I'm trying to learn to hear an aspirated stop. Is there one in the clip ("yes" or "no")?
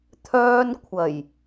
yes